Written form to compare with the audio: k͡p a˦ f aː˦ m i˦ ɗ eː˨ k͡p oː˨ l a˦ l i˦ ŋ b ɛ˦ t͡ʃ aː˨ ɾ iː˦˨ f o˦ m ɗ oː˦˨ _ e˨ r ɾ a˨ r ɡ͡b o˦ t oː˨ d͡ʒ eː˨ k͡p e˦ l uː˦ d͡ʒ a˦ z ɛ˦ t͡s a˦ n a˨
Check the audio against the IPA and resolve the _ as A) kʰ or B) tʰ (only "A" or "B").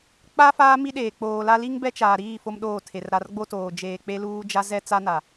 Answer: B